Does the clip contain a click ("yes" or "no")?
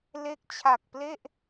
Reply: no